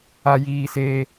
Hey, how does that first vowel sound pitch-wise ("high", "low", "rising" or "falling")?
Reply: high